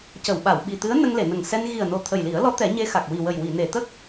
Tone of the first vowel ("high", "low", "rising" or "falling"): low